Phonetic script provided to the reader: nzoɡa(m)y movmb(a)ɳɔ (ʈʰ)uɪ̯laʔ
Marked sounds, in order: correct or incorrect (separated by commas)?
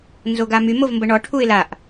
correct, incorrect, correct